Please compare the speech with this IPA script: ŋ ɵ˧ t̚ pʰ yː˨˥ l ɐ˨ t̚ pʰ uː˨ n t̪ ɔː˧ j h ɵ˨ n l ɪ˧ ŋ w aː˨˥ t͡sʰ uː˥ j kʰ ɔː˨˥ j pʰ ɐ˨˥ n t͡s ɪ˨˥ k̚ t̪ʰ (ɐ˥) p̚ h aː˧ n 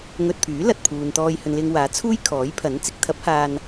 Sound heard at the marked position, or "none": ɐ˨˥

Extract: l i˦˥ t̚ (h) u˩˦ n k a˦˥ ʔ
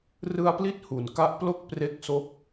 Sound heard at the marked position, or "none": h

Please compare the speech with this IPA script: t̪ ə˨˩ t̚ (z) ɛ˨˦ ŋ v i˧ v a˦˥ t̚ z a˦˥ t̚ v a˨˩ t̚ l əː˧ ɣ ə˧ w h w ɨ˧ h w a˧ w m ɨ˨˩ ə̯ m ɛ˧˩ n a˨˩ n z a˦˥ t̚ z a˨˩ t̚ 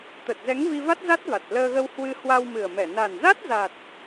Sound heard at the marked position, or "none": z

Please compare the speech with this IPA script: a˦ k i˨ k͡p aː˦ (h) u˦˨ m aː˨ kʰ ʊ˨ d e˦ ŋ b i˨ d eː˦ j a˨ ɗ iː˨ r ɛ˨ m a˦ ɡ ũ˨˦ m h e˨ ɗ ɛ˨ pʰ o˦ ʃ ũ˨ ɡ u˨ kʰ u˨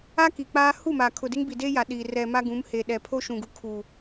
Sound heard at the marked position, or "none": h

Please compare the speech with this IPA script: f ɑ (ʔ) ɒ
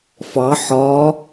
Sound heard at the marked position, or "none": ħ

